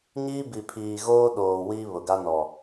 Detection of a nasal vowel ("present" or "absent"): absent